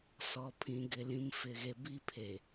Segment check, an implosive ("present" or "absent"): absent